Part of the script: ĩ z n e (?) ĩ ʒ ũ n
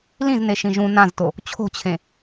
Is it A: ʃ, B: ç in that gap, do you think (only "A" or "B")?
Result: A